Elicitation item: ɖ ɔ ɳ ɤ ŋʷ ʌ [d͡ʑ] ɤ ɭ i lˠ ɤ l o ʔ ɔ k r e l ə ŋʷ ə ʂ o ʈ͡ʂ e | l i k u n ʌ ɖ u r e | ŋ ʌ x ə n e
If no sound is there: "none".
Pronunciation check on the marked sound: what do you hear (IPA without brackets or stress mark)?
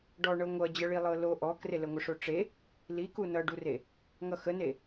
d͡ʑ